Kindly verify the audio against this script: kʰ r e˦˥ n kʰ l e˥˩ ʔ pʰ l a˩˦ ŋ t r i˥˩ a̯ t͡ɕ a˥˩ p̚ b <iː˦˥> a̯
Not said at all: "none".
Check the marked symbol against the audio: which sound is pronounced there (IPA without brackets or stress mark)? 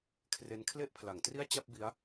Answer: i˦˥